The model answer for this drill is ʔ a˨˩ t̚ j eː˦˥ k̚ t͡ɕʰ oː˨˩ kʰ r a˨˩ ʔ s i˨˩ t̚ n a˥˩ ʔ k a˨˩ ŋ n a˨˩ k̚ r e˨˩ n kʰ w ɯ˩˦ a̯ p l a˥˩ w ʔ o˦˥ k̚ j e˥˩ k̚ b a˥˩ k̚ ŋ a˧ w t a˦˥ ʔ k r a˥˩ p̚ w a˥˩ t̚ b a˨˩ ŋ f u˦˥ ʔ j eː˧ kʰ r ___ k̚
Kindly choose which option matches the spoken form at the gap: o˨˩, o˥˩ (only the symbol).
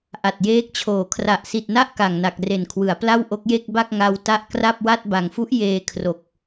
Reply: o˨˩